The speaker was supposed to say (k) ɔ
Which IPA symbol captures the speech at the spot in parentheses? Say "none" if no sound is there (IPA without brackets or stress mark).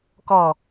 k